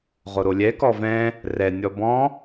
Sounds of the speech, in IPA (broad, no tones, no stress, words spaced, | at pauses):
ʁoɾolʲɛ kɔvɛ̃ | rɛ nʲɔbɔ̃